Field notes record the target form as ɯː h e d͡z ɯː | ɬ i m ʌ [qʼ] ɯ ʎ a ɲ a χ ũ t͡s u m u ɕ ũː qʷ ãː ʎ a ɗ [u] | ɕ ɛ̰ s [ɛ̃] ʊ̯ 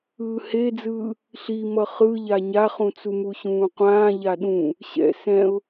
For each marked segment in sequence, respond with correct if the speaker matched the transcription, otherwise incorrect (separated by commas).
incorrect, incorrect, correct